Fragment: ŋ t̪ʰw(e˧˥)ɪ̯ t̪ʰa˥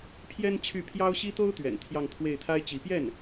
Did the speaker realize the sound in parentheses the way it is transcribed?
no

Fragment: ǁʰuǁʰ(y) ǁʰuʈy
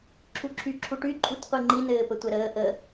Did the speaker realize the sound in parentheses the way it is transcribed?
yes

